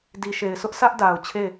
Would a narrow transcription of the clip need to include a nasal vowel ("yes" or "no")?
no